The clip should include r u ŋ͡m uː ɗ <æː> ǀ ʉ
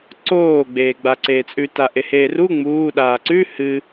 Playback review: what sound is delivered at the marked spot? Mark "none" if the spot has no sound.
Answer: aː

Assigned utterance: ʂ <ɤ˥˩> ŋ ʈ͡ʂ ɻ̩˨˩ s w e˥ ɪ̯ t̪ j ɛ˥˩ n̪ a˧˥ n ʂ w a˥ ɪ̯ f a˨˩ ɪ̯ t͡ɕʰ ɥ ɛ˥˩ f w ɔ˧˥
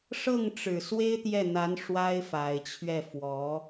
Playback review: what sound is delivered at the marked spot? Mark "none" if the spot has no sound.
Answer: ɤ˥˩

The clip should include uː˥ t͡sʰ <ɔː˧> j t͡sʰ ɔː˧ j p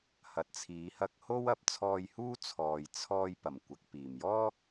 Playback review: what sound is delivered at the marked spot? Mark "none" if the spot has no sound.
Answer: ɔː˨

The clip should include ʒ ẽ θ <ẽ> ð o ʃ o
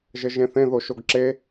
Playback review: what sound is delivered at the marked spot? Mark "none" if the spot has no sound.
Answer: ẽ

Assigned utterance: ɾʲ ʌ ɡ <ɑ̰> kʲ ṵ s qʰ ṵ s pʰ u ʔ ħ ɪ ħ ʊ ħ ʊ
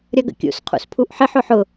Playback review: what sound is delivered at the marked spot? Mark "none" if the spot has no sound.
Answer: ə̰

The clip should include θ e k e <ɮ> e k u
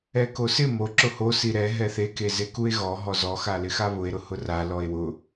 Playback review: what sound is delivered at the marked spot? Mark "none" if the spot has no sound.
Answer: z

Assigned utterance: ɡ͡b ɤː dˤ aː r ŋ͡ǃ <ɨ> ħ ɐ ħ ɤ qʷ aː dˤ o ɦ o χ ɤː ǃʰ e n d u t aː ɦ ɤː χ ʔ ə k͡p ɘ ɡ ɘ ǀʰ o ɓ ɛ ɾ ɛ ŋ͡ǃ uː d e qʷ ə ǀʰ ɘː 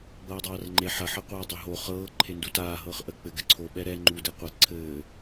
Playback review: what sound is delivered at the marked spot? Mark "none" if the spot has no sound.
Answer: e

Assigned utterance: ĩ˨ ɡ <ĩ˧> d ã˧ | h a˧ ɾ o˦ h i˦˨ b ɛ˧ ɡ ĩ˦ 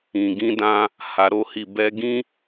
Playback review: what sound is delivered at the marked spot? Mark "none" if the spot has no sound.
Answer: ĩ˧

